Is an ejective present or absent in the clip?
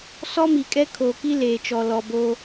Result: present